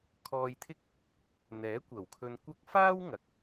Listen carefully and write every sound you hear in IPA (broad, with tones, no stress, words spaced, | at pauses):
kʰɔː˧jt̪ʰɪ˥k̚ | n̪ɛː˨˥ kʷɐ˨˩wkʰɵ˧nkʷɐ˥k̚ faː˥wŋɐ˨k̚